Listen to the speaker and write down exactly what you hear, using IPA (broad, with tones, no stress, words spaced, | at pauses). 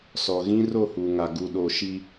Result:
sɔ˨ ɣĩ˦ro˦˨hu˨ŋa˨ ɡu˨ɗo˨ ʃi˦